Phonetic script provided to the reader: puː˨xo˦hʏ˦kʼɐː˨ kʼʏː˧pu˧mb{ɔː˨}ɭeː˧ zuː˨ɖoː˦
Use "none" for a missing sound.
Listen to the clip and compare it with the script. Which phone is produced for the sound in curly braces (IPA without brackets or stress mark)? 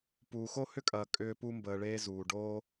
əː˨